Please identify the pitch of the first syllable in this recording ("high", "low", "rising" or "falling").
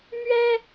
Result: high